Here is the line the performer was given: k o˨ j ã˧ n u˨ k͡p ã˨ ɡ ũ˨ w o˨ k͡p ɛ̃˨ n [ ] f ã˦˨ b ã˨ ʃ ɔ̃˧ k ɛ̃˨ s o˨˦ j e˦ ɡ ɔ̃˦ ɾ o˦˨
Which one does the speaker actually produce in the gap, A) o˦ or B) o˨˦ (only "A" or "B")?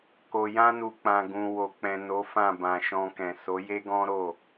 B